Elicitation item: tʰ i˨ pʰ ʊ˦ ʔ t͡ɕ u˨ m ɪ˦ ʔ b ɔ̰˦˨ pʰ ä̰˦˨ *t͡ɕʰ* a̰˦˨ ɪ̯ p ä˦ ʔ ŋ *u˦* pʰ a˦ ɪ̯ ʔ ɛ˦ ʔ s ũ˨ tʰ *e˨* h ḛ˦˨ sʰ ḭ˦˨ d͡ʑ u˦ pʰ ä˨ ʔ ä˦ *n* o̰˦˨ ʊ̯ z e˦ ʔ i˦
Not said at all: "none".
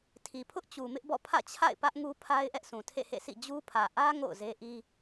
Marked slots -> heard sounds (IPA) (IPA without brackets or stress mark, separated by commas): t͡ɕʰ, u˦, ḛ˦˨, ŋ